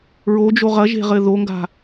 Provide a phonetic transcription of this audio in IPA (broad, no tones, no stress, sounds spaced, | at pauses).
ɹ o d͡ʒ o ʁ ɐ ʒ e̤ ʁ ɘ ð o ŋ ɡ a̤